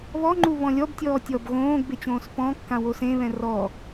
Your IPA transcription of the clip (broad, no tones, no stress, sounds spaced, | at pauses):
β ɔ ŋ͡ǃ u β ɔ̃ lʲ ɔ b tʲ ɔː tʲ ɔ b ɣ õː ɡ b e t͡ɕ õː s p ɔ̃ kː ã w o s ẽ β ɛ̃ r ɔ